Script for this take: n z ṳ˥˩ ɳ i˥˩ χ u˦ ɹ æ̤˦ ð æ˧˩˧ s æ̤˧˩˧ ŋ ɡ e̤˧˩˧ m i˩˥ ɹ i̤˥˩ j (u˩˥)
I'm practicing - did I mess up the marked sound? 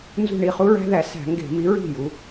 yes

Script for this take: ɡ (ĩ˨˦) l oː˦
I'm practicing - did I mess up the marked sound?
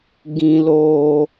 yes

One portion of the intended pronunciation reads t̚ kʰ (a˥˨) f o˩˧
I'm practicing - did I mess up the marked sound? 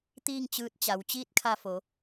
yes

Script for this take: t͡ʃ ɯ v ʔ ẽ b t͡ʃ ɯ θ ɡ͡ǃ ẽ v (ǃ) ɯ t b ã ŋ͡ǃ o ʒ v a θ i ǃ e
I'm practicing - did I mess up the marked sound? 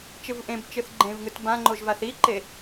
yes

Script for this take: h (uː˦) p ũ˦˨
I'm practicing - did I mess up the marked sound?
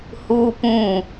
no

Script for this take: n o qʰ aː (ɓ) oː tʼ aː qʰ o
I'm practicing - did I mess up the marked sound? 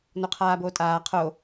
yes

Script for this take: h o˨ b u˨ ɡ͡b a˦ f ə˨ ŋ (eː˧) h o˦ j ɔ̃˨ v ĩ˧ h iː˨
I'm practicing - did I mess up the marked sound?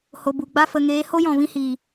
yes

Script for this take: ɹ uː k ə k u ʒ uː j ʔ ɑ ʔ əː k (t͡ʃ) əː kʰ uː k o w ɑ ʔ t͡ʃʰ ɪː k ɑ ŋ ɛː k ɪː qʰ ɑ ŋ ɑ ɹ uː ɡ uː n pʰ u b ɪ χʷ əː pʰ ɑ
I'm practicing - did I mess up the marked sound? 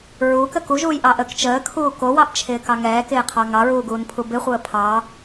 no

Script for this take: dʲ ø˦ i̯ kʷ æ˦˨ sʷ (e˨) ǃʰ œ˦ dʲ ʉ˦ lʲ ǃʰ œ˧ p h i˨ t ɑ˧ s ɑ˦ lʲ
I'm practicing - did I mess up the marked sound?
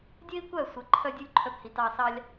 no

